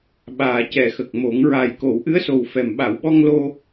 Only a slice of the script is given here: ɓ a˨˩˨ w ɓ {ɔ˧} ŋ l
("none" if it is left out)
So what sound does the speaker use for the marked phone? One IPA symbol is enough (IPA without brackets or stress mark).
ɔ˧